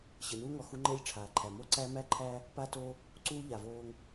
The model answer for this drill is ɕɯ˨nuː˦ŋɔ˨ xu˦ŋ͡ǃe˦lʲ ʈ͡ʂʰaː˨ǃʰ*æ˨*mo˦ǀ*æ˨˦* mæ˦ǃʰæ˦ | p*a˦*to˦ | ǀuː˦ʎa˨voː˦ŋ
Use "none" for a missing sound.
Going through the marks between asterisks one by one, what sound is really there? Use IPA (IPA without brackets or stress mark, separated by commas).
æ˨, æ˦, a˦